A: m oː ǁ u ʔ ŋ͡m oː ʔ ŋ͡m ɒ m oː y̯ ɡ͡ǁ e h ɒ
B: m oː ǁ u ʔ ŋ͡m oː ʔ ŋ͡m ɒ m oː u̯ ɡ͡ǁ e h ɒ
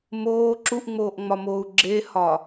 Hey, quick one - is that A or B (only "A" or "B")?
B